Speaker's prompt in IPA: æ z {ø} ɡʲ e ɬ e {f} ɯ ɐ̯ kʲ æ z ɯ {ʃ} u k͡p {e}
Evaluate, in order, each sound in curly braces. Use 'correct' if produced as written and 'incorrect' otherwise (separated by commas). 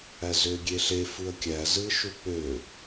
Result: correct, correct, correct, incorrect